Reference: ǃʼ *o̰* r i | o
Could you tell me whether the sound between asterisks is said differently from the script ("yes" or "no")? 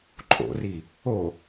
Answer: no